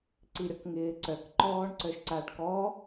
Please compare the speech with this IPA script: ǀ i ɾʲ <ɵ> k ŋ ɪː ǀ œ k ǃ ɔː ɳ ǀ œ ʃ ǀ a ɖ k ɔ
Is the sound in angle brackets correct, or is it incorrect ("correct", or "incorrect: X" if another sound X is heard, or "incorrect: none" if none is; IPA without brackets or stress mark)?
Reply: incorrect: ɔ